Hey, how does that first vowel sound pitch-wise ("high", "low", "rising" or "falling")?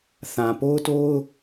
low